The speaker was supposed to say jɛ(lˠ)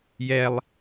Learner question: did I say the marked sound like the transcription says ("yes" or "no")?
yes